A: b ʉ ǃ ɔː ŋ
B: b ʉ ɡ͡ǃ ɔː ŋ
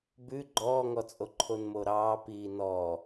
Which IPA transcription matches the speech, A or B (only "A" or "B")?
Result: B